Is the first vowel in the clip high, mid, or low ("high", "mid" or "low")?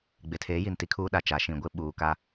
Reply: high